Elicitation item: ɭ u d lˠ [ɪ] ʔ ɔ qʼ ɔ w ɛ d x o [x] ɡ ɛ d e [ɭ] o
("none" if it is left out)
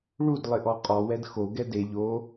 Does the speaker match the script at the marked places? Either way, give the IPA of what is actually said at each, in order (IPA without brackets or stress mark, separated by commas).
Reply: ɪ, none, ʎ